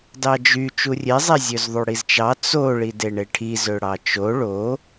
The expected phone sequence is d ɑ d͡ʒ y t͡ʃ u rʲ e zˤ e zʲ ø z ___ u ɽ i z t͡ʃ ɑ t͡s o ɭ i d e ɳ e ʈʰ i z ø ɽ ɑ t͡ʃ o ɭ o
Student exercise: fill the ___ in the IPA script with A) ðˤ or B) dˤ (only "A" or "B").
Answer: A